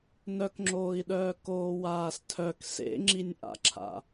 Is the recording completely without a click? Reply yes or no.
no